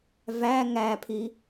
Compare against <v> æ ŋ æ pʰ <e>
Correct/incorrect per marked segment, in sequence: correct, incorrect

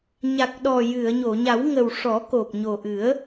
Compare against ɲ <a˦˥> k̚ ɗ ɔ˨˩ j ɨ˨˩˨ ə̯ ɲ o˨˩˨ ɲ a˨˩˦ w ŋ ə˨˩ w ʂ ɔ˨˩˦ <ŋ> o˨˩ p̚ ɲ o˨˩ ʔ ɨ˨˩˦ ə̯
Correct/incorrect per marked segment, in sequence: incorrect, incorrect

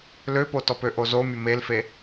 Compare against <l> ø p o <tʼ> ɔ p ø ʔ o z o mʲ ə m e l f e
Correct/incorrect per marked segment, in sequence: correct, incorrect

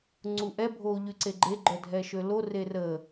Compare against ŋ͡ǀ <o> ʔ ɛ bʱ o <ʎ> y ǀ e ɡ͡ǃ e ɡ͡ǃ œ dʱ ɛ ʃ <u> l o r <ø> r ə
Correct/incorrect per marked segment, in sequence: incorrect, correct, incorrect, incorrect

